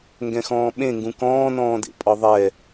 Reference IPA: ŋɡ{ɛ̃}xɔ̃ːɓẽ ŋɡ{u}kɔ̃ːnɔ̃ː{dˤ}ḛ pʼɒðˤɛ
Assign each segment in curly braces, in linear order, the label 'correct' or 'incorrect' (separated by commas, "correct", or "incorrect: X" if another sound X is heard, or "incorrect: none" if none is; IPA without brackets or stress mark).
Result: correct, incorrect: ũ, incorrect: d